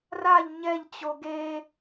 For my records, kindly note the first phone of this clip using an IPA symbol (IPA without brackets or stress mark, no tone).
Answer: r